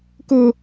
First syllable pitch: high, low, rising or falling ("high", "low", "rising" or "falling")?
high